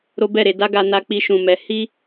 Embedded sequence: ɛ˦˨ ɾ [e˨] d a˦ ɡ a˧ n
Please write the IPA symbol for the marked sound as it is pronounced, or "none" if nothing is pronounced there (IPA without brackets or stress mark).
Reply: e˧